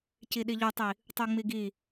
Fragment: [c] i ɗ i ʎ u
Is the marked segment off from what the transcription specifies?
no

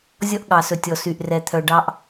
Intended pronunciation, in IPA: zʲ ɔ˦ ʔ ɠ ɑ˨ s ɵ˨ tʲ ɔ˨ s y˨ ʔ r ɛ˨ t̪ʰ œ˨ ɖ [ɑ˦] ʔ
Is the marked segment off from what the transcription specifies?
no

